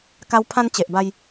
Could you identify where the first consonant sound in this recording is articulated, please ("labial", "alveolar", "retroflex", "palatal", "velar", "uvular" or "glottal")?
velar